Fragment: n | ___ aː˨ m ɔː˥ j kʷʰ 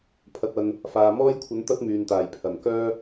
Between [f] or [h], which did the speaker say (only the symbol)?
f